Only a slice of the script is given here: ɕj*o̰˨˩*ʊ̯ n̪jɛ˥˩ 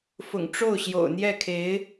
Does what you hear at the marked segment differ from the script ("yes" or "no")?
no